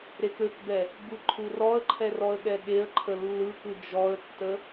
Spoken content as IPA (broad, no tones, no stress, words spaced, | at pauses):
ɾekøkbɛ | bɯǃʰurɔə̯ǃʰɛ rɔə̯ɠɛɠeə̯ǃʰə lːɯkɯ d͡ʒɔə̯tːə